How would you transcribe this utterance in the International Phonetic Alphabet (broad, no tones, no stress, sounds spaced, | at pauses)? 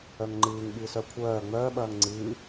œ ŋ ŋ͡ǃ ɨː ŋ ɠ ɨː s œ kʷʰ œː ŋ͡m œː ɓ ɐː ŋ ŋ͡ǀ ɨː